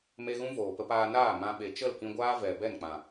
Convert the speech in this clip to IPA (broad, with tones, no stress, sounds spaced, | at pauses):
m e˧ ɣ ũ˦ v oː˨ p ə˧ p aː˧ n aː˦˨ m ã˧ ɓ e˨ t͡ʃ ə˦˨ l k ĩ˧ ɡʷ aː˦ v ɛ˨ b ɛ˦˨ n k͡p ã˨